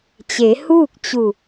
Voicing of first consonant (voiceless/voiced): voiceless